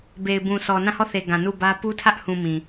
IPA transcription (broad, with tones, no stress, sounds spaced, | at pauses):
b e˨ ɪ̯ b ũ˨ s ɔ˨ n ã˦˨ h ɔ˦˨ θ e˨ ɡ ã˨ n u˦˨ b ä˦ p u˦ tʰ ä˦ ʔ h ũ˨ m ĩ˨